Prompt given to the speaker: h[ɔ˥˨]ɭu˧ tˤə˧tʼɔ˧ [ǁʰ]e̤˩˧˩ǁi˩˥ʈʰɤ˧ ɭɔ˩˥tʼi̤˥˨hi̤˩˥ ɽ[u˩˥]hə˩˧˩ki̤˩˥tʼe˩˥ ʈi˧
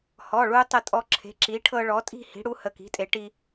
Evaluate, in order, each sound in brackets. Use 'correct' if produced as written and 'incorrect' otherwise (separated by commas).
incorrect, correct, correct